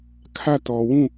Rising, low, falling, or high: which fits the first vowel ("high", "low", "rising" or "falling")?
falling